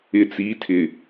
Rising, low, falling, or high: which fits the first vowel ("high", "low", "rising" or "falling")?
low